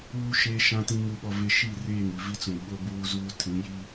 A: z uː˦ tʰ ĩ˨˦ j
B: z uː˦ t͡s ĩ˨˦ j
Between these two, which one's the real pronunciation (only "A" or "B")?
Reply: A